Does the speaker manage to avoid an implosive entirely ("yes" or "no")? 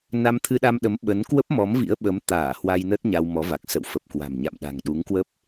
no